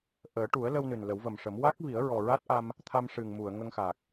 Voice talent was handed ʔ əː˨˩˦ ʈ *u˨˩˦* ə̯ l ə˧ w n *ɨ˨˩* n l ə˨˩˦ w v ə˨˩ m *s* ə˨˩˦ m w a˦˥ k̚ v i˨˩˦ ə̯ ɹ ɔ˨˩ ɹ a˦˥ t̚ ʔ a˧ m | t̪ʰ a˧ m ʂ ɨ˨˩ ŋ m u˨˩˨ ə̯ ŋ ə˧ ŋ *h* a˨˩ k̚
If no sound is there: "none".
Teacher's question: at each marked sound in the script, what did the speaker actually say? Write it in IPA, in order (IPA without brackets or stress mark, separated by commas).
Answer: u˨˩˦, ɨ˨˩, ʂ, x